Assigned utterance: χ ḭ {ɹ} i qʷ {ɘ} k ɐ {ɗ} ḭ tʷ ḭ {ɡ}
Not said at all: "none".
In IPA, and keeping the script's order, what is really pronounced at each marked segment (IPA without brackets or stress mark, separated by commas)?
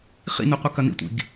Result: n, ɘ, n, ɡ